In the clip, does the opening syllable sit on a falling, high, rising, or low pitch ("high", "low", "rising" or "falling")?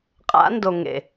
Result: rising